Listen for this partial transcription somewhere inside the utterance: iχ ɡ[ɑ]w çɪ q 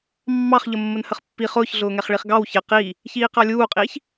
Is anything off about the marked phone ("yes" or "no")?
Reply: no